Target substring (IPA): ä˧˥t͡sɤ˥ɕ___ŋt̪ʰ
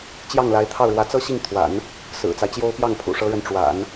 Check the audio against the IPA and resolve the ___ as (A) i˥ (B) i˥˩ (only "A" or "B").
B